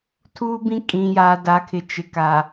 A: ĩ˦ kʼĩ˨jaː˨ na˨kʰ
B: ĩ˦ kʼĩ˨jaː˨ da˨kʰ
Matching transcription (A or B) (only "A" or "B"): B